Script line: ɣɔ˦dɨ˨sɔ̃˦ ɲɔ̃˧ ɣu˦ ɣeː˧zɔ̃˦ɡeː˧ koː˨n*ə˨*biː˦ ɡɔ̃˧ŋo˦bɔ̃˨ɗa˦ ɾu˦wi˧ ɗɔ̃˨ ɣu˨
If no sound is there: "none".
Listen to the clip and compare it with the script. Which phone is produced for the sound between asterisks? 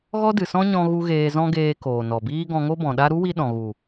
ɔ˨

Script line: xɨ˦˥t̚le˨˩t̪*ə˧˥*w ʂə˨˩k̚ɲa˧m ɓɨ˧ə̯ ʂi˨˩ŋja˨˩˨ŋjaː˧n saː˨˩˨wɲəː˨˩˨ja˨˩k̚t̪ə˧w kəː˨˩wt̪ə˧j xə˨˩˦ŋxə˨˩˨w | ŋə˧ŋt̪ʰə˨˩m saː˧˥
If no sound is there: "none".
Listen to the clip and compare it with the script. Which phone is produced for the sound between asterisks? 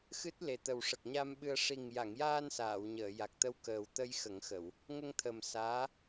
ə˨˩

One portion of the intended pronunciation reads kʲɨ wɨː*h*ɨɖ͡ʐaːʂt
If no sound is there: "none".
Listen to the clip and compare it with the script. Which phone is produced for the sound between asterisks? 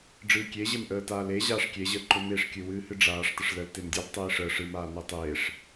h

